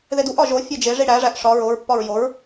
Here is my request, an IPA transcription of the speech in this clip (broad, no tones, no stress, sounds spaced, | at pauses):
ð e d u ʔ ɒ ʒ o fʲ e d͡ʒ e ʐ i ɽ æ ʐ æ ʔ ʂ ɒ ɹ o ɹ pː ɒ ɹ j o ɹ